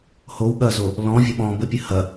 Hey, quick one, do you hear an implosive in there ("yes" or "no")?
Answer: yes